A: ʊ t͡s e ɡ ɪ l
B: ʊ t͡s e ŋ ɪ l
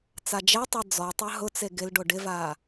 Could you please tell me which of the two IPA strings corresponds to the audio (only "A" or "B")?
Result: A